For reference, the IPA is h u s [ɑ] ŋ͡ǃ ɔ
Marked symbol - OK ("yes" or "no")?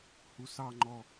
yes